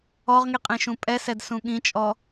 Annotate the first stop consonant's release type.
ejective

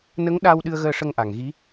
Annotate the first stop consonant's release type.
implosive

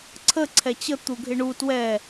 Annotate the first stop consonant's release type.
click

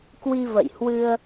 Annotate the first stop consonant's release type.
plain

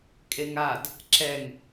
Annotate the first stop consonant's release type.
ejective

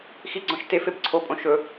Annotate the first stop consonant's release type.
click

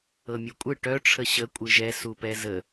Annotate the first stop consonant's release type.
ejective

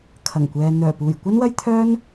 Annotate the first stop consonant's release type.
aspirated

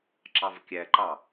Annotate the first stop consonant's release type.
click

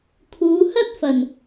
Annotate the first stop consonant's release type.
aspirated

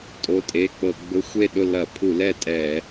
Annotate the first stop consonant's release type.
ejective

